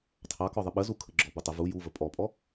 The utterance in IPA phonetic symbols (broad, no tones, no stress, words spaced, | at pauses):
tʰɑkɔ ðˤəɓəzukʰə ɡ͡ǁɔbutˤə vu juvə pʼɔpʼɔ